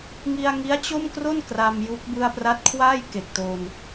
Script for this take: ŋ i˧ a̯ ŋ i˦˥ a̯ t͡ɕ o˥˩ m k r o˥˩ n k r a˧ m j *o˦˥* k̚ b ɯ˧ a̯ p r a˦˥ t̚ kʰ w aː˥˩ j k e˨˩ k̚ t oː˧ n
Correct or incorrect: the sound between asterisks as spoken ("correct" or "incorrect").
incorrect